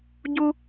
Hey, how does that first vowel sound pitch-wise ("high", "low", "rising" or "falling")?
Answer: high